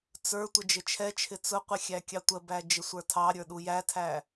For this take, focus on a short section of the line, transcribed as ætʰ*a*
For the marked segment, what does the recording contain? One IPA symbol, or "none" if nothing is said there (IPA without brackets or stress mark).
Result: æ